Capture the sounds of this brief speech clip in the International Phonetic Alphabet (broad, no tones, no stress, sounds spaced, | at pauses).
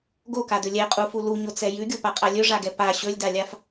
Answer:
ɡ o k a d ɵ lʲ ɛ qʼ u f u l u ɲ o t͡s ɛ j ʉ ɡʲ o p a qʼ a lʲ ɵ ʐ a ɡ ɛ p a ɕ ɵ lʲ d a lʲ a f